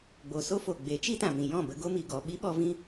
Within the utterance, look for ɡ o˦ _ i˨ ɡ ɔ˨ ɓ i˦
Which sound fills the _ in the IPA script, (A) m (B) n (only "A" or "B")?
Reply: A